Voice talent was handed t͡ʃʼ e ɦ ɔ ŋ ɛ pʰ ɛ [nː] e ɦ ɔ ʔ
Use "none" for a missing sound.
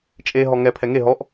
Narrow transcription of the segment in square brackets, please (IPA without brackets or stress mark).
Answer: ŋ